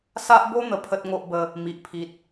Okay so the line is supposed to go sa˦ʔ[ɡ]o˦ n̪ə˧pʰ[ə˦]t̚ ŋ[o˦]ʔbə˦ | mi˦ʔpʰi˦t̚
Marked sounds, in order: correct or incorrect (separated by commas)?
incorrect, correct, correct